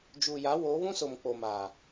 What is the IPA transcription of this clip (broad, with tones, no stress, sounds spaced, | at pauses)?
d͡ʒ uː˨ j a˨˦ w oː˨˦ β ũ˦ s o˨ m k͡p o˨ m a˨